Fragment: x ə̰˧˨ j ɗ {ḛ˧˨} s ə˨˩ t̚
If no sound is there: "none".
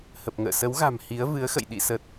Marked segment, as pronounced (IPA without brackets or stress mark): ḭ˧˨